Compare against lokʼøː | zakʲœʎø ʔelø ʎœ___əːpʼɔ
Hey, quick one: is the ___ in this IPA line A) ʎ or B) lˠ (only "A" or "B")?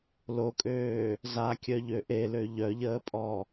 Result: A